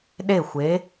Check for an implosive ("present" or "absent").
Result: present